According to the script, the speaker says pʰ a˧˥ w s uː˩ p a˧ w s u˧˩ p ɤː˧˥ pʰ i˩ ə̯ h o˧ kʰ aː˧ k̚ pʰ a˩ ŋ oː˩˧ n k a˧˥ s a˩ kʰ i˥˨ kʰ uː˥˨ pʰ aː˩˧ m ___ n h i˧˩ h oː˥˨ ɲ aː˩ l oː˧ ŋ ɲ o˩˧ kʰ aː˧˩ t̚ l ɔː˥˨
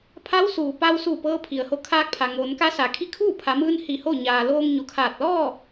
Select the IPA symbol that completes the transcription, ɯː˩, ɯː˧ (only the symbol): ɯː˧